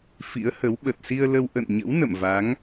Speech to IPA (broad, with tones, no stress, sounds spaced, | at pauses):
f ḭ˧˥ ə̯ h ə˨˦ w ɓ ə˨˩ t̚ s i˧ ə̯ l ə˧ w ʔ ə̰˧˨ n ɲ ə̰˧˥ w n ə̰˧˨ m v a˨˦ ŋ